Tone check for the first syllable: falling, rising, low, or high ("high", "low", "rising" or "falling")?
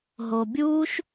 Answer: low